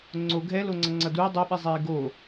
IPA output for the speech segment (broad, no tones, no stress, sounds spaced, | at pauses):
ŋ͡ǀ o ɡʱ ɛ l o ŋ͡ǀ ʌ ŋ͡ǀ ʌ d uː dˤ o ɓ i zˤ eː ɡ o